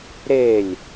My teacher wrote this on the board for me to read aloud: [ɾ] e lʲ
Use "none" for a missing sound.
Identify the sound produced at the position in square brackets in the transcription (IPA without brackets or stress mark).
ɾ